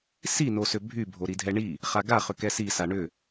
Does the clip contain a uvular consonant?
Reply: yes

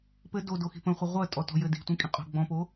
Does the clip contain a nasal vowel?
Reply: yes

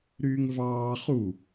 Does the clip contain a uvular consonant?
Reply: yes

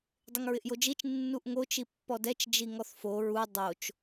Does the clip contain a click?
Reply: no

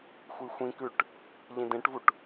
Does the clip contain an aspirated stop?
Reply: no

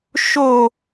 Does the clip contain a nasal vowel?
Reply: no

